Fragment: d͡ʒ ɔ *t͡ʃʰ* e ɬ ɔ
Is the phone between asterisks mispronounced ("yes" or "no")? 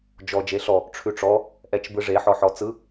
yes